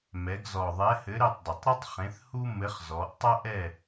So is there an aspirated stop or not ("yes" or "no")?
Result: no